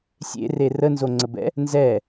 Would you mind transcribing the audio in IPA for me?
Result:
sʲ ḛ r e r ə n z o ŋ͡ǀ ə b ɛ̰ | n z ɛ

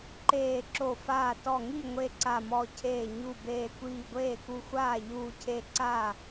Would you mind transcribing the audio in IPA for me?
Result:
ǃ eː˧˩ ǁ o˧˩ f aː˧˩ t ɔ˧˩ ŋ i˥˩ ŋʷ e˥˩ ǀ a˧˩ m ɔ˧˩ cʰ eː˧˩ ɲ u˧˩ b eː˧˩ kʷ iː˧˩ ɡʷ eː˥˩ k u˧˩ xʷ aː˥˩ ʎ uː˧˩ cʰ e˧˩ ǀ a˥˩

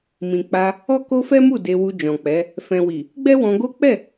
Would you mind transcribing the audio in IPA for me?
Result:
m ĩ˨ k͡p a˧ | ɔ˦ k o˦ f ɛ˦ m u˦˨ d e˧ w u˧ d͡ʒ ɔ̃˨ k͡p ɛ˨˦ | f ɛ̃˨ w i˨ | ɡ͡b ɛ˦ w ɔ̃˧ ɡ o˦ k͡p ɛ˦˨

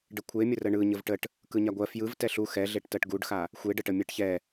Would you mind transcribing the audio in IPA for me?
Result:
ɖ ə kʷʰ e mʲ ə r ə ɳ ɯ ɲ ə v ʈ ə ʈ | k ɯ ɲ a ɡʷ ɜ f j ɯ v t ɛ ɬ u x ɛ ɮ e ʈ t ɜ ʈ ɡ u ɖ x a | xʷ e ɖ ə ʈ ə mʲ ɛ ʈ ç ɛ

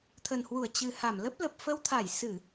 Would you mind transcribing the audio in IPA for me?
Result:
t̪ʰ ə˨˩ n h w u˧˩ ə̯ t͡ɕ ɨ˨˩ h a˧˩ m l ə˦˥ p̚ l ə˨˩ p̚ f ə˧ w t̪ʰ a˧˩ j s ɨ˧˩˨

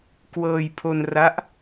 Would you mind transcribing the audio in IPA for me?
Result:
k w ɤː˧ j pʰ o˧ n r a˦˥ ʔ

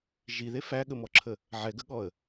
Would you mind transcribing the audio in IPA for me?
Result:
ʒ i ð e f æ ɠ ə m ɔ ǁʰ ə | ʕ ɛ ɡ ə ɠ ɔ ə̯

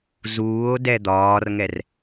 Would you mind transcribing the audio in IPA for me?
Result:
z uː o̯ d ɛ d̪ ɒː r ŋ ɛ r

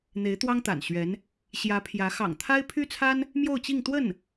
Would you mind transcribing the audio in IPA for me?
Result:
n̪ e˧˥ ɪ̯ t̪ w ɑ˥ ŋ t̪ a̰˨˩ n ɕ ɥ ɛ˧˥ n | ɕ j ä˧˥ pʰ j ä˧˥ x ɑ̰˨˩ ŋ t̪ʰ a˥ ɪ̯ pʰ y˥ t͡sʰ a˥ n | m j o˥˧ ʊ̯ t͡ɕ i˥˧ ŋ t̪ w ə˥˩ n

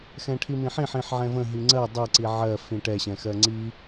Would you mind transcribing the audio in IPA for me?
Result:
x ɛ̃ ʈʰ i m ĩ ħ ĩ ħ ĩ ħ ʕ ɛ̃ v ə̃ ɦ i ŋ͡ǀ ɜ dˤ ɛ ǀ i ʕ ɜ f ĩ ʈ ɛ ɕ ɛ̃ x ɜ ŋ͡ǀ i

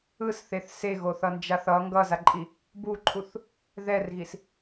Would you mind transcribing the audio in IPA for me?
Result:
ɯ s θ e θ s e ɣ o θ ʌ n d͡ʒ a θ ʌ ŋ ɡ ʌ z a ǃʼ i | b u ǃʰ u θ | ð ɛ r ɣ i s

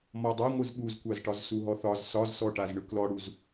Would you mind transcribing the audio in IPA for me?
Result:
m ɔ dˤ a ŋʷ ɯ z ɓ u z kʷ a z ʈ ɒ z s u ɦ ɔ θ ɒ z s ɒ z s ɔ ʈ a z ɳ ɯ k l ɔ ɽ u z

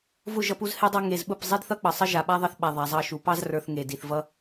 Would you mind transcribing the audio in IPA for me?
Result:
v ʊ˦˨ ʒ ʌ˧ p u˧ z h e˧ dˤ ʌ˧ ŋ e˨ z ɓ ʊ˦˨ p zˤ i˦ d θ ʌ˦ k͡p ʌ˨ sˤ ʌ˦ ʒ a˨ ɓ a˦ ðˤ ʌ˧ θ ɓ a˨ ðˤ a˨ zˤ ɑ˦˨ ʃ u˨ p ɑ˦ z r ə˞˨ θ ŋ e˨ d i˨ θ v ʌ˦

